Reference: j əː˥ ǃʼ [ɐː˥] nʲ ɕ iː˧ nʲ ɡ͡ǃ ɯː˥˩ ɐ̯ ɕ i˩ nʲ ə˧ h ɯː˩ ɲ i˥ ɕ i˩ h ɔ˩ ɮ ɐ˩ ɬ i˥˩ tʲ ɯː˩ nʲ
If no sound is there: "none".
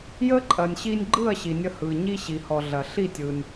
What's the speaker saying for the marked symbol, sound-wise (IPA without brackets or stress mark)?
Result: ɐː˩